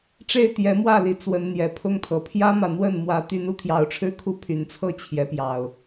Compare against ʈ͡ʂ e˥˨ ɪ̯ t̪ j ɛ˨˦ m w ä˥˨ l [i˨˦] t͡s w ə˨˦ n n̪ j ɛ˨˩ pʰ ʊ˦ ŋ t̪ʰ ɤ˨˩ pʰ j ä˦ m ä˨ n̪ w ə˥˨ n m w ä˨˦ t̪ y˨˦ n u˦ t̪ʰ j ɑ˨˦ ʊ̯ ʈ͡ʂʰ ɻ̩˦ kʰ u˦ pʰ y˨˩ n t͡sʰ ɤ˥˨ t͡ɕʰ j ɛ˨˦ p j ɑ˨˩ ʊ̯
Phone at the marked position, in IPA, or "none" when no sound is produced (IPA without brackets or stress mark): i˨˦